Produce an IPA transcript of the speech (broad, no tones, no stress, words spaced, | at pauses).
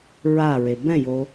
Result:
ɹaɹe bɛ̃jo